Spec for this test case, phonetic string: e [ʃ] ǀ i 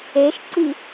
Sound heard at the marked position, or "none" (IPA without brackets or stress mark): ʃ